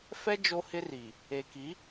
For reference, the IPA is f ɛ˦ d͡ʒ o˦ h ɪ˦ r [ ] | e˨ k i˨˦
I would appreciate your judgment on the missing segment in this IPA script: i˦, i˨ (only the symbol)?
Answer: i˨